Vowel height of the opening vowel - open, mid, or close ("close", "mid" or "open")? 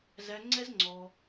open